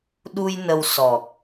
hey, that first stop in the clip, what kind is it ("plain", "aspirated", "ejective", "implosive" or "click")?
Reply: implosive